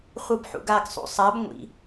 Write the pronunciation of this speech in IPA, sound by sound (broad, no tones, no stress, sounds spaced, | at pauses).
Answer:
χʷ ɯ b ħ ṵ ɡ a ɡ sˤ ṵ sˤ a b ŋʷ ḭ